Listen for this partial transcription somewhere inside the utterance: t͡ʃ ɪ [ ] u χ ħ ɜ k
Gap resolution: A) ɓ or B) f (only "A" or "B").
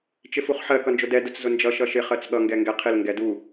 B